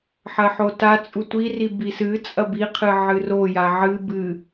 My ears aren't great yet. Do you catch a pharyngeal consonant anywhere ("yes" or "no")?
yes